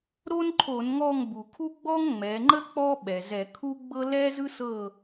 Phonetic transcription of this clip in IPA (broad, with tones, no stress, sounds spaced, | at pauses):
ɾ o˥ n ǃʰ o˧˩˧ n ŋ ɔ˦˨ ŋ b u˩ kʰ u˥ ɡ͡b ɔ˥ ŋ ŋ͡m ɛ˩˧ ŋ͡ǃ ə˥ k͡p ɔ˥ ɓ ɛ˩ z ɛ˧˩˧ kʰ u˥ ɡ͡b ɤ˥ l ɛ˥ z ɯ˥ s ɤ˦˨